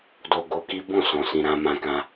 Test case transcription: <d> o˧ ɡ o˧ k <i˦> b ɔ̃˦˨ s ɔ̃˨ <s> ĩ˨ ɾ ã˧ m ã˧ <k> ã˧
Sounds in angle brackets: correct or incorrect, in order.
correct, correct, correct, correct

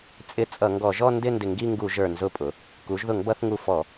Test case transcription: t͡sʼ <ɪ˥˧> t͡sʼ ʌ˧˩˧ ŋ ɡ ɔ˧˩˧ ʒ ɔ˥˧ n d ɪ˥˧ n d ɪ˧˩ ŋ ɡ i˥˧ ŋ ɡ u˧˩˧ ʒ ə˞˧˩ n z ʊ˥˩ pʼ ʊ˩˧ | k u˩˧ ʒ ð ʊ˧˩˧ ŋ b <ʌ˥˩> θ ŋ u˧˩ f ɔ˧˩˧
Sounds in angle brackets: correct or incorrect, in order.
incorrect: ɪ˨˥, incorrect: ʌ˧˩˧

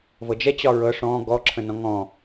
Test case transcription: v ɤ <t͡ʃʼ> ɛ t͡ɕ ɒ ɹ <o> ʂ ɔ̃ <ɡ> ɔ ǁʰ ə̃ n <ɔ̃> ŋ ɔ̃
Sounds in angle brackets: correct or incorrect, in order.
incorrect: d͡ʒ, incorrect: ɤ, correct, correct

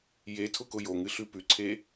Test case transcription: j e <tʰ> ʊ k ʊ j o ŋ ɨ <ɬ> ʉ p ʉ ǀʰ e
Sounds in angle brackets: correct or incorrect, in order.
correct, correct

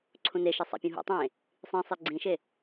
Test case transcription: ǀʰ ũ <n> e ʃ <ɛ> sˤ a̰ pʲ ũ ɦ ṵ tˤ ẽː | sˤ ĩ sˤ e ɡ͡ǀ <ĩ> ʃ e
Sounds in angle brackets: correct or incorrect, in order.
correct, correct, correct

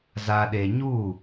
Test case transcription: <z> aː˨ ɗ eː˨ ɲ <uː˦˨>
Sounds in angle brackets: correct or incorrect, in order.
correct, correct

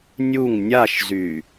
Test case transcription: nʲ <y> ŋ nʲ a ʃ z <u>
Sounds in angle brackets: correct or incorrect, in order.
incorrect: u, incorrect: y

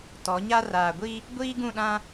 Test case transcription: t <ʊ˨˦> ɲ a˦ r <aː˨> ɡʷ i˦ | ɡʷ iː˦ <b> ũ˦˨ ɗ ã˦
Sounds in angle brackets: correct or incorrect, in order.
incorrect: ɔ˨˦, correct, incorrect: ɡ

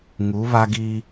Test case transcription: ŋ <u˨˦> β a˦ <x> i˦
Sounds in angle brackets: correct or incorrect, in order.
correct, incorrect: ɡ

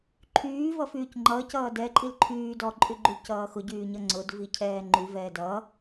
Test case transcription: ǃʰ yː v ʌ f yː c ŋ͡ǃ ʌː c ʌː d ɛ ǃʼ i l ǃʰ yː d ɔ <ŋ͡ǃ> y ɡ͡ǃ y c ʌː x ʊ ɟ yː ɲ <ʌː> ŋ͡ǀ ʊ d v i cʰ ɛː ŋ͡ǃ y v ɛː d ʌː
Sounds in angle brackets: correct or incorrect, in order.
incorrect: ǃʼ, incorrect: ʌ

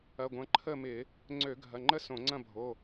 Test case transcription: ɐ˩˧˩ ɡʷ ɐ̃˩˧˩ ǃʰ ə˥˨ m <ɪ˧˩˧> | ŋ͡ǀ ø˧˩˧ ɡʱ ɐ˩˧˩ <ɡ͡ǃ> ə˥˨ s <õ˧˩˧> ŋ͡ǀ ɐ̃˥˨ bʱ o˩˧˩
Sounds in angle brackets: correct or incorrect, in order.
correct, incorrect: ŋ͡ǃ, correct

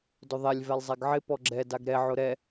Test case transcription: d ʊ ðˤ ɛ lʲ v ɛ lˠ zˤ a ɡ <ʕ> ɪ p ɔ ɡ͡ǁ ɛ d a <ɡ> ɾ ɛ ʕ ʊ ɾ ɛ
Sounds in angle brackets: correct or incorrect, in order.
correct, correct

